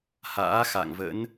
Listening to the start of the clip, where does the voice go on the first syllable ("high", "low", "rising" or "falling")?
rising